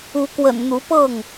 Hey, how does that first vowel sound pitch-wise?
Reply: rising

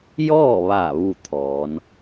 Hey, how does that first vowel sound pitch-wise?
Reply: falling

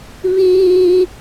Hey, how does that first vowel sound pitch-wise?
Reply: high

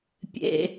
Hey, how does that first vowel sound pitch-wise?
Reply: high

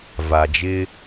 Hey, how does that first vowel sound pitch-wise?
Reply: low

